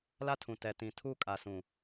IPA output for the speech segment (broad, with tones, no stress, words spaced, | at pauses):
la˦tʰũ˨ tɛ˨tĩ˨ tʰu˦˨kʼa˨sũ˨